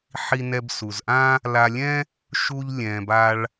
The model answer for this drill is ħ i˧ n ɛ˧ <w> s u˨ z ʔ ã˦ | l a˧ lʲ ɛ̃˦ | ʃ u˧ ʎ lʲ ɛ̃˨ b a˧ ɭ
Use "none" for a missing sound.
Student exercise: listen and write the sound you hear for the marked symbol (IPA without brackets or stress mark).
b